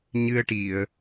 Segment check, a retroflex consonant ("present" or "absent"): present